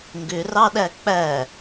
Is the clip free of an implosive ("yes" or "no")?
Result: no